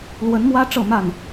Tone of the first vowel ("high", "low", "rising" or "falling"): rising